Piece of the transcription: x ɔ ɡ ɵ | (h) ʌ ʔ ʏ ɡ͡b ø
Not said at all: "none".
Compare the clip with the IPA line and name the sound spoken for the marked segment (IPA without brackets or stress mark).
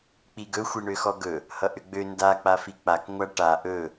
h